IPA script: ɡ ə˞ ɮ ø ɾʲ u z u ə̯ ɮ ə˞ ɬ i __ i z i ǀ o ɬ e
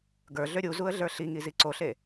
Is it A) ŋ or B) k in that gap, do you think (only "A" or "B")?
A